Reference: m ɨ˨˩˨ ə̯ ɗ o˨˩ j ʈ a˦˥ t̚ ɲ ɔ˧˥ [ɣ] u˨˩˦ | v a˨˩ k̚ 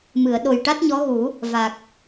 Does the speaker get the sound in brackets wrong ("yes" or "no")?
no